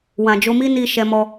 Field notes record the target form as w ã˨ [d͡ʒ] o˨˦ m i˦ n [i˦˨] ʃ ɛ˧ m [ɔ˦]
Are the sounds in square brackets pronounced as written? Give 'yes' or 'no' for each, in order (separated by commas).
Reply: yes, yes, no